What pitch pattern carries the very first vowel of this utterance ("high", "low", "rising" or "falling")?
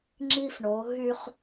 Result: high